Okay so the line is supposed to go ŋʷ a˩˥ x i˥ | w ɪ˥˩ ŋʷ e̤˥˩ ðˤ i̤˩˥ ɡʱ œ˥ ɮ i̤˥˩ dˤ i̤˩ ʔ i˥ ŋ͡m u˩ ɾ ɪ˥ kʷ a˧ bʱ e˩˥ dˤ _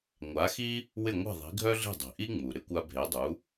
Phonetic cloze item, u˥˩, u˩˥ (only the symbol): u˩˥